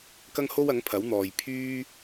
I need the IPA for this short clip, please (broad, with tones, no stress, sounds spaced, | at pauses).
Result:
k ɐ˥ ŋ h o˥ w ɐ˨˥ ŋ pʰ ɐ˨˥ w n̪ ɔː˨ j pʰ yː˥